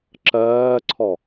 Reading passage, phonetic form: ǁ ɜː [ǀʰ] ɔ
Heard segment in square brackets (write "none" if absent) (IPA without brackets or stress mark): ǀʰ